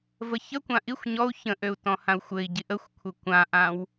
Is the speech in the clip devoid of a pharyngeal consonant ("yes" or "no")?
yes